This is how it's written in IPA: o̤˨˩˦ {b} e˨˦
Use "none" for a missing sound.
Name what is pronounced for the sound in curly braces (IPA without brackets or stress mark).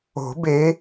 b